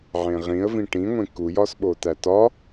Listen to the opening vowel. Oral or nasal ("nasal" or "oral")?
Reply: nasal